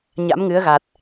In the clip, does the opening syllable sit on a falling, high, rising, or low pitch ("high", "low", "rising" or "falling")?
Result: rising